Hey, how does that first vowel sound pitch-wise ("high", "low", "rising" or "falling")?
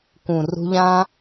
low